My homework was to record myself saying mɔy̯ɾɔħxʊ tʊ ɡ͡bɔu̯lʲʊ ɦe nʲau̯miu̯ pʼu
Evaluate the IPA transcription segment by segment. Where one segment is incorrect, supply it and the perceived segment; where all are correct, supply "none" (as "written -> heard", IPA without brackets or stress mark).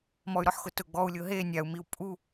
none